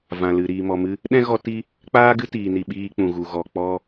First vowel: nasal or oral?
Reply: nasal